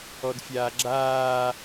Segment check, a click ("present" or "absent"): present